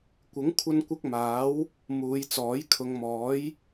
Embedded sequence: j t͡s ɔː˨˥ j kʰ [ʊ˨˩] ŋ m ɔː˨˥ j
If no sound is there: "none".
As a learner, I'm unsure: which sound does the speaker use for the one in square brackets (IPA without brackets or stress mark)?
ʊ˨˧